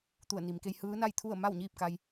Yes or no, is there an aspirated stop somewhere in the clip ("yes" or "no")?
yes